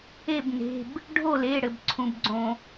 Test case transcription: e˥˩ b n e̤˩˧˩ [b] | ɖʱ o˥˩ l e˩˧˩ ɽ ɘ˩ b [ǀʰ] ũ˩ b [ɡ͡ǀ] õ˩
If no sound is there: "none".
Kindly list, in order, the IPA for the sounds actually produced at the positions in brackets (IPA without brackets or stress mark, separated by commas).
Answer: b, ǀʰ, ɡ͡ǀ